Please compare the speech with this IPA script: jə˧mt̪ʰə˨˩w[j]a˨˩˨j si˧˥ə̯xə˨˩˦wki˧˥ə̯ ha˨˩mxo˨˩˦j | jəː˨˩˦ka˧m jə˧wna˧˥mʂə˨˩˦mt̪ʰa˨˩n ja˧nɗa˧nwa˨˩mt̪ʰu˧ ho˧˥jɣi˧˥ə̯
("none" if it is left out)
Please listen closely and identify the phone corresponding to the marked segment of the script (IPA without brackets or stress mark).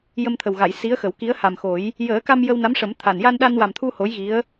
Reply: ɣ